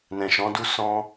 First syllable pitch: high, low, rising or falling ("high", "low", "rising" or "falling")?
low